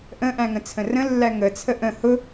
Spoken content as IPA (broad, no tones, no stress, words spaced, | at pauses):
ʔə̃ʔæ̃ŋə̃t͡sʰə̃ rə̃lːæ ŋət͡sʰə ʔə̃ hʊ